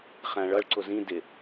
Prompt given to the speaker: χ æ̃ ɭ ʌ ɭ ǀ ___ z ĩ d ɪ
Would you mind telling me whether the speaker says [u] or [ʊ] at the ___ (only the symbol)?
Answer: ʊ